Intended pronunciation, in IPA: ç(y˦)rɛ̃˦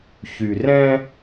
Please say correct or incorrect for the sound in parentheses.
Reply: incorrect